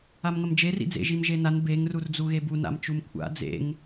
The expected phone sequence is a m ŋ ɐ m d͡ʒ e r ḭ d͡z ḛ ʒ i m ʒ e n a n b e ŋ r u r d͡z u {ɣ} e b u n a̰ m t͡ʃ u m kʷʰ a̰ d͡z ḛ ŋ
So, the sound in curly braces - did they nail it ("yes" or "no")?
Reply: yes